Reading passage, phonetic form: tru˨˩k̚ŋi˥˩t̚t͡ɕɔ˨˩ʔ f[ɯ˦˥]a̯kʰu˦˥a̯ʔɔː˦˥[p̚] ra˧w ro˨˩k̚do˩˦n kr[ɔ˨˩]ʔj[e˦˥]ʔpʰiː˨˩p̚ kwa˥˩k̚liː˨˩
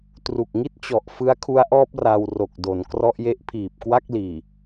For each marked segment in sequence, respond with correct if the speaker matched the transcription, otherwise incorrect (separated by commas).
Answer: correct, correct, incorrect, correct